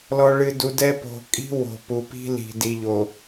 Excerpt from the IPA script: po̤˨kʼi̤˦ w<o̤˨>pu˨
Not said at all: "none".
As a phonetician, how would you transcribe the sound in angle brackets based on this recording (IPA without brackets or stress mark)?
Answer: o̤˨